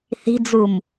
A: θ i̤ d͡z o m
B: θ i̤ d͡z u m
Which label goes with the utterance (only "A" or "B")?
B